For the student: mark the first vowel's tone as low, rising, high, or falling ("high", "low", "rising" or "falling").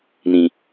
low